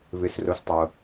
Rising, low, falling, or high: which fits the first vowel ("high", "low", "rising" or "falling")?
low